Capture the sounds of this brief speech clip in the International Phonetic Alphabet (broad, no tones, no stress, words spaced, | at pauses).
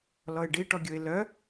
lɔɪ̯ɖiʈɔɡʲoɪ̯ lœ